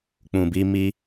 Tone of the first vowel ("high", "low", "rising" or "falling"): low